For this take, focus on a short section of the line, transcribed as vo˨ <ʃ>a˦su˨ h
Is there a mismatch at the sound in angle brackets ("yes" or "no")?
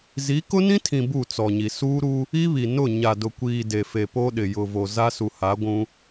yes